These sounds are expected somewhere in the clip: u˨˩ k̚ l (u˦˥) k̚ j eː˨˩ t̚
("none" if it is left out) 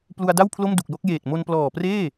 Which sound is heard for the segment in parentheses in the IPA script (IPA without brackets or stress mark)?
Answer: o˦˥